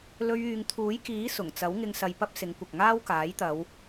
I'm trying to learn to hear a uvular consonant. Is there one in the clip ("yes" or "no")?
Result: no